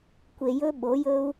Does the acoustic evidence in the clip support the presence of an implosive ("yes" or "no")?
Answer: yes